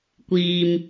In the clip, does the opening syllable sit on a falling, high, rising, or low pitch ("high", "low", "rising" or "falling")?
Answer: low